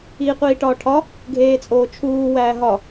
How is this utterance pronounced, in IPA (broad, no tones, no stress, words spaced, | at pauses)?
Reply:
iːqʷiːʈɒːʈʰɒ | ɡʱeːt͡sʼoːt͡ʃʰuː wæːɦɒ